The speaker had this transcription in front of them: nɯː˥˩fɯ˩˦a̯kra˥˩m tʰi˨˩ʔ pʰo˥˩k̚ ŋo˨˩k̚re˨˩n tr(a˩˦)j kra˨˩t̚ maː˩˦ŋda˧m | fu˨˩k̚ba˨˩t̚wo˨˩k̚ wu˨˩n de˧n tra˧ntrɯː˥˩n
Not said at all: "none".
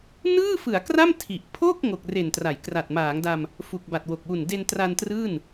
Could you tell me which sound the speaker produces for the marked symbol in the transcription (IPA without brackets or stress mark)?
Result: a˩˦